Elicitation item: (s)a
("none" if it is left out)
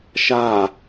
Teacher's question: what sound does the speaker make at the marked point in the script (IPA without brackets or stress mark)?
ʃ